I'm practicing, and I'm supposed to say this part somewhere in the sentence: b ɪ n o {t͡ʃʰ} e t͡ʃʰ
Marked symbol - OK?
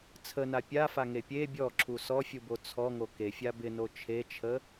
yes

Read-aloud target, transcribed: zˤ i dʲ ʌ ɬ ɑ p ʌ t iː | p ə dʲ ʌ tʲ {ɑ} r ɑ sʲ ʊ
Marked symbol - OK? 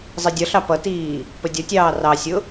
no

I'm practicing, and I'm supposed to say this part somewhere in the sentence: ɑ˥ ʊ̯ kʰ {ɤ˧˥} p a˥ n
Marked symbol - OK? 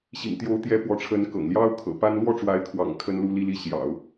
no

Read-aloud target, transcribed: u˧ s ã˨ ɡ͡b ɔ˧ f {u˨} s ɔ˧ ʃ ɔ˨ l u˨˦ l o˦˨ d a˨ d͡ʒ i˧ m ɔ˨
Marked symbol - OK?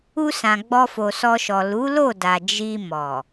no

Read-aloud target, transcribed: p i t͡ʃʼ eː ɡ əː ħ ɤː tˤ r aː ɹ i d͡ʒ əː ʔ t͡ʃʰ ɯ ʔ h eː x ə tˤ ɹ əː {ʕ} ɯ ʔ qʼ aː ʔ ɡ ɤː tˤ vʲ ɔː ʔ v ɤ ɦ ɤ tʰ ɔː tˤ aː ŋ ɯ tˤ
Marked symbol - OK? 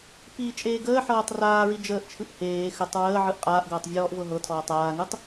yes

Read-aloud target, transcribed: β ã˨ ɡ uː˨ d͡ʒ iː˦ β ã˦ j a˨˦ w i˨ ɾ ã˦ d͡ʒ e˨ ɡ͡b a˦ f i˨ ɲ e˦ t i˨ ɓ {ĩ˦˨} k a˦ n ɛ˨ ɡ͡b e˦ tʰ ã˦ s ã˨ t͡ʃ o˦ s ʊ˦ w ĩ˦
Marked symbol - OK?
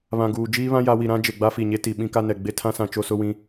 no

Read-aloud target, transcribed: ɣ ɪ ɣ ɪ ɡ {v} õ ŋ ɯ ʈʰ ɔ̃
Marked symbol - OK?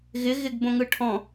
no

